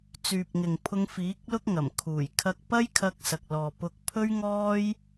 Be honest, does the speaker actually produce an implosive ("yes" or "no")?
no